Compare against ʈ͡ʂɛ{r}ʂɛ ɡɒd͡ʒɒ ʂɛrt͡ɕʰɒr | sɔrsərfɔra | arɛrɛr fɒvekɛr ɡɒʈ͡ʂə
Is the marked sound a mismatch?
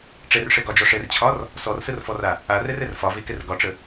no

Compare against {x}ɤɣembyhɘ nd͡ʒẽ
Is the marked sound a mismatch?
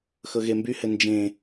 no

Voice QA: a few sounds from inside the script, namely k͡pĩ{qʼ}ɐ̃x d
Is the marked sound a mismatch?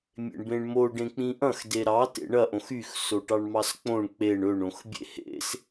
yes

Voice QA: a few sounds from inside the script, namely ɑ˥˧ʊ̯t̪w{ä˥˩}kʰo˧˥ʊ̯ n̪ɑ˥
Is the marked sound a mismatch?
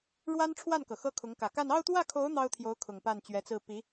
no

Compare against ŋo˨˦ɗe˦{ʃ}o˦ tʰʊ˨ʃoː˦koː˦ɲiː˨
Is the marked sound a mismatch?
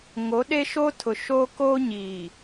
no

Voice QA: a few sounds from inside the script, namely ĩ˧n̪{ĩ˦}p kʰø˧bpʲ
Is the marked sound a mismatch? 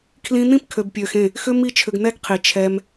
no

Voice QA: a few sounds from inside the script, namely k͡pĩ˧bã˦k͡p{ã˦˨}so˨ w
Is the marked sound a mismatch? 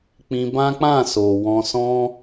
no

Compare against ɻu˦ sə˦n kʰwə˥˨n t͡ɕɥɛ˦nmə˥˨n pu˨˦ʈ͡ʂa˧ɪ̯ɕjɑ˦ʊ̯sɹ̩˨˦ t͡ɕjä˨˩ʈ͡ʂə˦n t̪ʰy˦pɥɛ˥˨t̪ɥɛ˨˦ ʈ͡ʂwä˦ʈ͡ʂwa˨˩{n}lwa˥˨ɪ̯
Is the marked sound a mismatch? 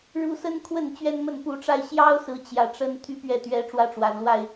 no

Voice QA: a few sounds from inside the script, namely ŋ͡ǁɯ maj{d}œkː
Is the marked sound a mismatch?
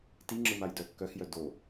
no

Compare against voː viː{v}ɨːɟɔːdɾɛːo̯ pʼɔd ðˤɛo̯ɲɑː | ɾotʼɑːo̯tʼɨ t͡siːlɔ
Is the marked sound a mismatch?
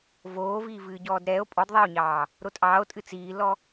no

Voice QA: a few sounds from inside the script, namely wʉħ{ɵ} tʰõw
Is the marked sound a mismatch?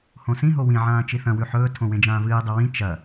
yes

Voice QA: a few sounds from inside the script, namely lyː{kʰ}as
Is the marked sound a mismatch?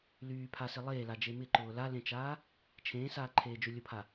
yes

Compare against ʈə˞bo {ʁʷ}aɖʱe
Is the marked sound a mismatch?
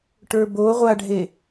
no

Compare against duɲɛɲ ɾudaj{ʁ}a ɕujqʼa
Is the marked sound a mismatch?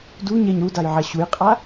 yes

